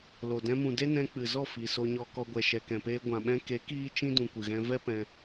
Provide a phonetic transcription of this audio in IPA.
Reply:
lo˨ dɛ̃˧mũ˨de˦ nɛ̃˧k͡pɨ˨zɔ˦˨fi˨ so˧ɲɔ˧kɔ˧ɡʷɛ˨ ʃɛ˨kɛ̃˨peː˧ ɡʷã˨ɓɛ̃˧ ke˨˦ kiː˦ t͡ʃĩ˧ dũ˨kʷɨ˨ɣɛ̃˧ vɛ˦pɛ̃˧

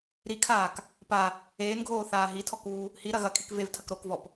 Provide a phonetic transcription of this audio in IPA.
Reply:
ɾikʰaːk | pa | eːnɡʱoːθaː ɦitʰɔkuː | hiɾɐ ɣɐkʰik vevtʰɐk ɾokvɔp

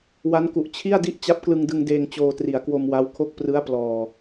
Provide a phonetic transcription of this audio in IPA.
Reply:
wa˦˥nku˨˩ʔ t͡ɕʰi˥˩a̯di˥˩ʔ t͡ɕa˦˥p̚klɯ˧ŋdɯ˧ŋdeː˧ŋ t͡ɕoː˧tri˩˦a̯kwo˧mwa˦˥w kʰo˦˥k̚prɯ˦˥a̯plɔː˨˩

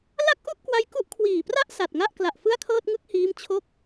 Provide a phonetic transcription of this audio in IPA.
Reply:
la˥˩k̚ʔu˥˩ʔkwa˦˥j ku˦˥ʔkʰwiː˨˩pra˥˩ʔ sa˨˩t̚ŋa˥˩ʔ kla˨˩ʔ fɯ˥˩a̯kʰɤː˥˩t̚ŋɯ˥˩k̚hiː˦˥m t͡ɕʰo˥˩k̚

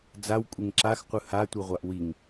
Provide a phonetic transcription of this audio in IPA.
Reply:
d͡zawkʷʼeŋ ǁaxqʷɯ hatʷɯʁʷaʔ wiŋ

